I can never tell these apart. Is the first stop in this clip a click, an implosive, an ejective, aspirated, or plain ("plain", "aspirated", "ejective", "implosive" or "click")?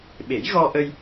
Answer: implosive